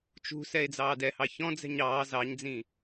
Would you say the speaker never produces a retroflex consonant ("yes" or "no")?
yes